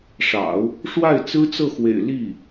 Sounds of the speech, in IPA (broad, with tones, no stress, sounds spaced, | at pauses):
ʂ ɑ̰˨˩˦ ʊ̯ | ʂ w a˥˩ ɪ̯ t͡s ɹ̩˥ t͡s ɤ˥˩ x w ḛ˨˩ ɪ̯ l i˥˩